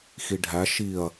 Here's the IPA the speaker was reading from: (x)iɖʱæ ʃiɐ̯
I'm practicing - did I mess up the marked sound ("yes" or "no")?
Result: no